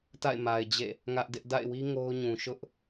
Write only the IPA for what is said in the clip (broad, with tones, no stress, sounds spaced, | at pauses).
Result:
t a̰˦˨ ɪ̯ m a˨ ɪ̯ d͡ʑ ḛ˦˨ | ŋ ä˦ ʔ d ɪ˦ ʔ d a̰˦˨ ɪ̯ w i˦ ŋ o˦ ʊ̯ ɲ ũ˨ ʃ ʊ˦ ʔ